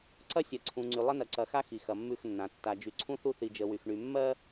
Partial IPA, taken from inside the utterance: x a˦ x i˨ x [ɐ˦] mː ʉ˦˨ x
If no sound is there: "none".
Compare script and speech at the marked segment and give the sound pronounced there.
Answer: ɐ˨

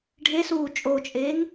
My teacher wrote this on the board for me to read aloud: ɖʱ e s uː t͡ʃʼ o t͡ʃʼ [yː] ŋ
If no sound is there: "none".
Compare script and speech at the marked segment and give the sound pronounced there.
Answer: eː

